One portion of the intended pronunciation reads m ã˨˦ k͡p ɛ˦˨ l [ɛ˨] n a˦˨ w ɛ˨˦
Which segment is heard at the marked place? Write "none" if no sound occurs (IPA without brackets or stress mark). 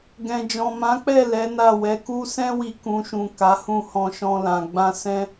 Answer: ɛ˨˦